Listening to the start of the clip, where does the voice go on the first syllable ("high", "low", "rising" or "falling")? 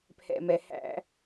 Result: low